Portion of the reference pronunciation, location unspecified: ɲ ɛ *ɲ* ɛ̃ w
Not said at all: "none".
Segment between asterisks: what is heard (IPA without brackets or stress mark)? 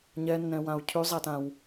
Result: nː